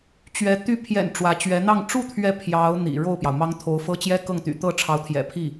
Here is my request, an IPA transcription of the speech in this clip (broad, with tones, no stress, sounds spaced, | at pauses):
t͡ɕ ɥ ɛ˧˥ t̪ y˧˥ pʰ j ɛ̰˨˩ n ʈ͡ʂ w ä˧˥ t͡ɕ ɥ ɛ˧˥ n̪ ɑ˥˧ ŋ ʈ͡ʂ u˥˩ t̪ʰ ɥ ɛ˧˥ pʰ j ɑ˧˥ ʊ̯ n̪ ḭ˨˩ ɻ o˥˩ ʊ̯ p j ɑ˩ ʊ̯ m ɑ˥ ŋ t̪ʰ o˧˥ ʊ̯ f ɤ˥ t͡ɕ j ɛ˥ k ɤ˥˩ ŋ t̪ y̰˨˩ t̪ ɤ˥˩ ʈ͡ʂʰ ɑ˧˥ ʊ̯ t̪ʰ j ɛ̰˨˩ pʰ i˥˩